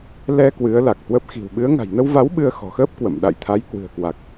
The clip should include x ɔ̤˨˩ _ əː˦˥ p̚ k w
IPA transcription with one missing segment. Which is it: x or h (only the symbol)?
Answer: x